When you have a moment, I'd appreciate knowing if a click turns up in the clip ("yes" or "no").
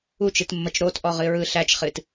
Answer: no